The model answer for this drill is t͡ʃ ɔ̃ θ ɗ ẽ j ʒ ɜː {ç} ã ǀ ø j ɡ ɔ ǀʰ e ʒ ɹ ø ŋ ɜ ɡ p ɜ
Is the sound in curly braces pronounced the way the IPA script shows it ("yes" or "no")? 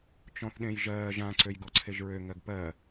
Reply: no